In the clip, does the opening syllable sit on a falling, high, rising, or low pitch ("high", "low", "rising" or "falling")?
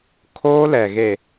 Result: high